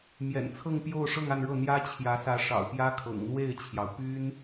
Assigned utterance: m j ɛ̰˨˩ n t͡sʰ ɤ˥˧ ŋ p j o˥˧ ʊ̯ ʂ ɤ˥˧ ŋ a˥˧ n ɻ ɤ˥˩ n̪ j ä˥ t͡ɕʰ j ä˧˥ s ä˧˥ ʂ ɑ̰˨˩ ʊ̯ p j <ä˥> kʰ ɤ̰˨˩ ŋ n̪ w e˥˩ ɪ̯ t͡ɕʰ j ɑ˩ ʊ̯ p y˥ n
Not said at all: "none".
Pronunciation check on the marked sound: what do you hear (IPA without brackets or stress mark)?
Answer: ä˥